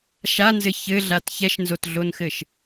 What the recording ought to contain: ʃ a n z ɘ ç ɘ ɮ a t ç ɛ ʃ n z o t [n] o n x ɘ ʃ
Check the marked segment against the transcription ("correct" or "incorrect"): incorrect